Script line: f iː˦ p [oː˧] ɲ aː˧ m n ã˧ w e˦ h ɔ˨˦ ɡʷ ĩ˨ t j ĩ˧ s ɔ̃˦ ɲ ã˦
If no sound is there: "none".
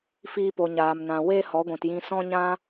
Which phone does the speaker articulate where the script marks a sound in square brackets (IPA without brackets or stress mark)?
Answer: o˧